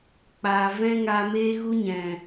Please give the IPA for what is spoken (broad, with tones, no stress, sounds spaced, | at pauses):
k͡p aː˨ v ɛ̃˦ ŋ a˧ m eː˦ ɣ u˦ ɲ ɛ̃˨